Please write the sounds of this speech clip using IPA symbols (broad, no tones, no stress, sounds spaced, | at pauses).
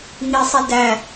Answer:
ŋ i sˤ i d æ